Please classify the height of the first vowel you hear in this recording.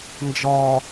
low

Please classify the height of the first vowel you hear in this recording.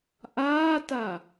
low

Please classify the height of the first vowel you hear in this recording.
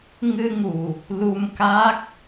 high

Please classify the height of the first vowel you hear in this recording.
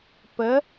mid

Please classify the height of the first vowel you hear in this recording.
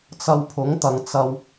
low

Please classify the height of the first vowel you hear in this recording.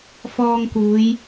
mid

